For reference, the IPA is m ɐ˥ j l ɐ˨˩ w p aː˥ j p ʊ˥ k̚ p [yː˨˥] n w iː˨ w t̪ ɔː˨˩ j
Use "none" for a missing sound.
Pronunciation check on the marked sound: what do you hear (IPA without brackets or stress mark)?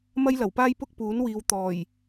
uː˨˥